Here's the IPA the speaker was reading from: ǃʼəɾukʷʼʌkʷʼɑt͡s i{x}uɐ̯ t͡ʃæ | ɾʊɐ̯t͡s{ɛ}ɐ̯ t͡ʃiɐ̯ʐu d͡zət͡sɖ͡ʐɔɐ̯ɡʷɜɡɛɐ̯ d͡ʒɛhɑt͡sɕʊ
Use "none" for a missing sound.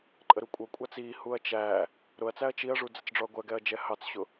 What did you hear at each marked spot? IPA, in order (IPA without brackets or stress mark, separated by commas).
h, æ